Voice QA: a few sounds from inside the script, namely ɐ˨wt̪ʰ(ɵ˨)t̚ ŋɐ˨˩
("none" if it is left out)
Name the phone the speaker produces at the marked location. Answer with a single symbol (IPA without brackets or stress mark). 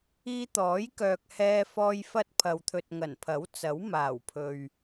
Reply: ɵ˨